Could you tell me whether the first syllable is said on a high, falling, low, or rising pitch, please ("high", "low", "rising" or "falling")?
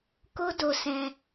high